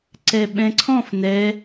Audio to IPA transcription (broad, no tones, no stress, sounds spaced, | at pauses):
ǀ ɛ ɓ ɛ̃ ǀʰ ɔ̃ f n ɛ